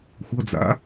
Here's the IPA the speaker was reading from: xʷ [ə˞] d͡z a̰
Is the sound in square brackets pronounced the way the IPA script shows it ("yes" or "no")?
no